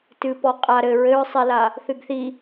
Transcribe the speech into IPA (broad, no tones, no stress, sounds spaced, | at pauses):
t ɨ p ɔ qʼ a ɾ ɘ ɹ ɘ ɹ sˤ ɛ l a | θ ɨ ɡ θ i